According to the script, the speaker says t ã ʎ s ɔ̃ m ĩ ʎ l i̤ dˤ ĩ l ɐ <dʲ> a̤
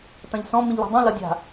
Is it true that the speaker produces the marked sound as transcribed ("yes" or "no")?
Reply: yes